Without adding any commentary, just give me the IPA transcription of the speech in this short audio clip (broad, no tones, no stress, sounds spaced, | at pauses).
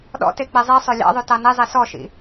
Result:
ɗ ɔ̰ t e k͡p e zˤ i sˤ ø lʲ ɑ̰ ðˤ ʉ t ɑ n i zˤ i s ɔ ʃ ḭ